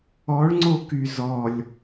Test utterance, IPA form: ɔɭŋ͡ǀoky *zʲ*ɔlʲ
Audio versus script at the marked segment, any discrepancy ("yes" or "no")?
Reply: yes